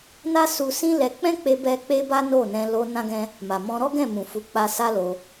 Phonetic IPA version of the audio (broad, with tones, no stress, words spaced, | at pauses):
na˦ su˧sĩ˦ lɛ˧ k͡pɛ̃˦k͡pe˧bɛ˧ k͡pe˦ba˦no˦˨nɛ̃˧ lo˧ nã˦ɡɛ̃˦ | ma˨mɔ̃˧ ɾɔ˦ɡɛ̃˦˨mũ˨ fu˨˦k͡pa˧ sa˦lo˧